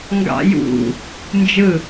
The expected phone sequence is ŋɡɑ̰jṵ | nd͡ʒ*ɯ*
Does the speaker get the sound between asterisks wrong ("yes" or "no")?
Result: no